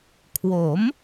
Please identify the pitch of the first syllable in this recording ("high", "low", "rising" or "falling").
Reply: rising